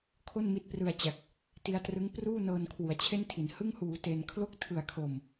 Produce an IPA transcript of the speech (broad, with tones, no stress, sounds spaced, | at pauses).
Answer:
kʰ o˥˩ n m i˦˥ t̚ p r ɯ˧ a̯ t͡ɕ a˨˩ k̚ | t i˦˥ a̯ t r ɯ˦˥ ŋ p r uː˥˩ n ɤː˧ n kʰ w u˩˦ a̯ t͡ɕʰ e˥˩ n tʰ i˩˦ n h ɯ˥˩ ŋ h uː˩˦ t e˧ n kʰ l o˥˩ k̚ tʰ ɯ˨˩ a̯ kʰ oː˨˩ m